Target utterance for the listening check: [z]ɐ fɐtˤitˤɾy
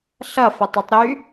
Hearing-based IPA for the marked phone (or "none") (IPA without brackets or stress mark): ɬ